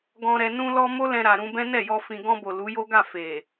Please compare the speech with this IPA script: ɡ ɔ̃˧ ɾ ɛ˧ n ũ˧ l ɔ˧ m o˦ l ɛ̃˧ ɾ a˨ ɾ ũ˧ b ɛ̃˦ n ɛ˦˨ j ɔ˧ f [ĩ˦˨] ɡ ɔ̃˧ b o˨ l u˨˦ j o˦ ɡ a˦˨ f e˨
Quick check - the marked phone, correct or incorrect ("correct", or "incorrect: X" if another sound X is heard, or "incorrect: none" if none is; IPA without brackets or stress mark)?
incorrect: ĩ˨